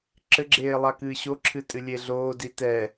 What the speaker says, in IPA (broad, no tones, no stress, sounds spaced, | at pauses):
ǁ ɘ ɡ͡ǁ eː lˠ a k ɨː ɕ o ǁʰ ɨ tʼ ɨ lʲ e ɮ oː d i t ɛ